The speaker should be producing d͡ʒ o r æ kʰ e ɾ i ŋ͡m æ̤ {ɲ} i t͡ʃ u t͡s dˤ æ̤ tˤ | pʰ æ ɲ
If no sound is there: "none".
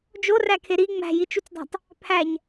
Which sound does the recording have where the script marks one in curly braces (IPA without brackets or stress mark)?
j